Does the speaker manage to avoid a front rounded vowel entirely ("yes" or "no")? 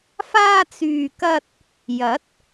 no